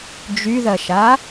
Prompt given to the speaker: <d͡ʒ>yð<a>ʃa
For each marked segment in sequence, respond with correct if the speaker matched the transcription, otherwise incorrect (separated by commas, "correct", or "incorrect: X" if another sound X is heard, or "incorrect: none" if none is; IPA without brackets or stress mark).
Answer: correct, incorrect: ɐ